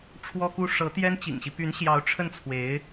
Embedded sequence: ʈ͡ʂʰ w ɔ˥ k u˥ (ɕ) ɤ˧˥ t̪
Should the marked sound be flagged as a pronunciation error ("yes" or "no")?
yes